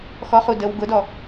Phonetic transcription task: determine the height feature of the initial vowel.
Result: mid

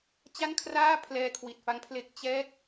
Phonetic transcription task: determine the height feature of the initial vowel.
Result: low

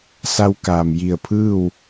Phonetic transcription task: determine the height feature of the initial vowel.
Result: low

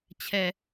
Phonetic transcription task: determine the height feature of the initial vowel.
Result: mid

